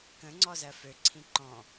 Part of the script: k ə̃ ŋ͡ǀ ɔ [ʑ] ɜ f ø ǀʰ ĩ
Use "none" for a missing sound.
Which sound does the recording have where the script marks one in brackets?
z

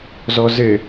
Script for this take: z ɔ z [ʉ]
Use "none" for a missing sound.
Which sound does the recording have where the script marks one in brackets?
ɘ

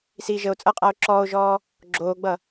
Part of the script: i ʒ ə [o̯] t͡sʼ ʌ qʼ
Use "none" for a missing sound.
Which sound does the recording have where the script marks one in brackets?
o̯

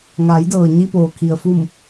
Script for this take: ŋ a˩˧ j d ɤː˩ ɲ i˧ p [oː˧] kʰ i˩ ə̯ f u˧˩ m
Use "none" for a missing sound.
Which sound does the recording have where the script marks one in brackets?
oː˩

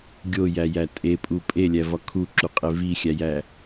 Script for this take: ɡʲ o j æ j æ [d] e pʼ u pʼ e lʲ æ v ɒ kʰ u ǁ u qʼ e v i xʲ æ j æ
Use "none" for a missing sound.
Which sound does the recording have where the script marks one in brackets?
tʼ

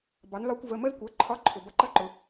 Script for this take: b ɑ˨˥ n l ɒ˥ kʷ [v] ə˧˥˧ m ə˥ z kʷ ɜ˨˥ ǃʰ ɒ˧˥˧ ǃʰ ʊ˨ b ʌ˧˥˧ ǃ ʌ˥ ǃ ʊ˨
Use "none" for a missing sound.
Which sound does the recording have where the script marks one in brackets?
v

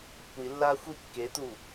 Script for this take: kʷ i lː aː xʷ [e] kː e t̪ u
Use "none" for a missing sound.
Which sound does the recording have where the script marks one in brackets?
i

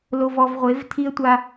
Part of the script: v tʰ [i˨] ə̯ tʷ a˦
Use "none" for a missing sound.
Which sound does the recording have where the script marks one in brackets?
i˦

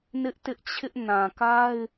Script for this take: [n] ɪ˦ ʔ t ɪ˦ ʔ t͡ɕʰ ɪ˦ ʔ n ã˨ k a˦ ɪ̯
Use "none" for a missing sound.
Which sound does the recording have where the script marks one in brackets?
n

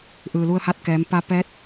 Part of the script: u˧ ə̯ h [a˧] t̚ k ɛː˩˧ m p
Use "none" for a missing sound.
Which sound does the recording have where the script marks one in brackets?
a˧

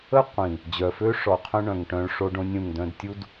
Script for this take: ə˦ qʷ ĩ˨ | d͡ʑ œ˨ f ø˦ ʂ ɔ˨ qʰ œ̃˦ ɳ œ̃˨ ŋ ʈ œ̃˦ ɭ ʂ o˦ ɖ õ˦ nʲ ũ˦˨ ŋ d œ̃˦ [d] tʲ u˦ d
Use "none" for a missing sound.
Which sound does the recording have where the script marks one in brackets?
d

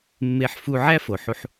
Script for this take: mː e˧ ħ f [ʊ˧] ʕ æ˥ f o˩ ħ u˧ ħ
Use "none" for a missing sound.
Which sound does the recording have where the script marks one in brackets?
u˧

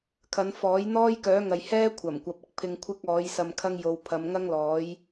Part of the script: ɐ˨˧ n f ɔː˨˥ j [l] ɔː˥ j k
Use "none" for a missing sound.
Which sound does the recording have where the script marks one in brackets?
n̪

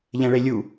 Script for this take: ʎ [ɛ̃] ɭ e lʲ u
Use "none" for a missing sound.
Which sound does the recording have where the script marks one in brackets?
ɛ̃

